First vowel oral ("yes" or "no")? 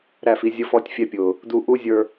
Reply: yes